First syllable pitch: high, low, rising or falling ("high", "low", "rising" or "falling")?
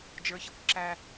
high